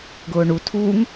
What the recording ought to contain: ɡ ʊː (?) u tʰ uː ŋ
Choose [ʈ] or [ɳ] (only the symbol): ɳ